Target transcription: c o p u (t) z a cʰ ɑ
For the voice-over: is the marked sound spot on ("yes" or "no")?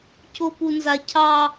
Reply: no